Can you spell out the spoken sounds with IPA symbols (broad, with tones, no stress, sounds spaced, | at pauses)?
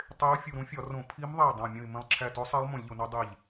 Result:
tˤ e˧˥ ʊ̯ fʲ u˧˩ ɾ ũ˧˥ fʲ ɒ˧˩˧ r õ˧˩˧ pʰ i˧˥ m ðˤ e˧˩ dˤ õ˧˩ mʲ ũ˧˩ ɪ̯ m ẽ˧˩ lˠ ǁʰ æ˧˩ t o˧˥ sˤ e˧˥ lˠ m ũ˧˩˧ lʲ ʎ o˧˩˧ n ɒ˧˥ dˤ i˧˩ ʎ